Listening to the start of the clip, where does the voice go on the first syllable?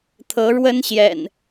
rising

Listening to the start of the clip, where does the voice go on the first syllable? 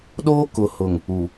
high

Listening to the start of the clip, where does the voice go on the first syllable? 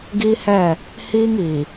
high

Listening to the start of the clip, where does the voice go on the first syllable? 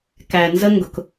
low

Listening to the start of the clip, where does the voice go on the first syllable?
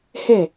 falling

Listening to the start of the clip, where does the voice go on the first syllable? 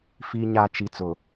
low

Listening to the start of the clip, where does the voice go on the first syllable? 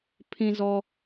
high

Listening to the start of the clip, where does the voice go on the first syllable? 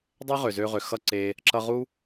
high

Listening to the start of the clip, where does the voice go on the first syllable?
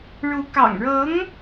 rising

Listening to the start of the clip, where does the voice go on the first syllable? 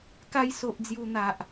high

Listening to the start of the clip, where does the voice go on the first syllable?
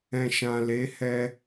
low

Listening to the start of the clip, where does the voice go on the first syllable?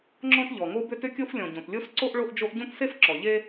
high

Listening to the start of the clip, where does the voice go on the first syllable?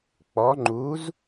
rising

